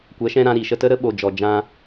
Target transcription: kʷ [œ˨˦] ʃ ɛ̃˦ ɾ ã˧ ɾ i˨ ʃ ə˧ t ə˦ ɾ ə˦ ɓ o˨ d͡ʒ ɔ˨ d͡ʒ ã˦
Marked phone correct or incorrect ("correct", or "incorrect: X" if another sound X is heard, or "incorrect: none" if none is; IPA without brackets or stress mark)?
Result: incorrect: ɛ˨˦